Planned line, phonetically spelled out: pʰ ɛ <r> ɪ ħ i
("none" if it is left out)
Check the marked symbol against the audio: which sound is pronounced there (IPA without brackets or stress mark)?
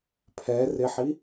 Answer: r